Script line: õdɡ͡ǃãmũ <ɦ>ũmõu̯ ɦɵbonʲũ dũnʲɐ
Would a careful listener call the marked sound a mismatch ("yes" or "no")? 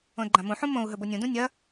yes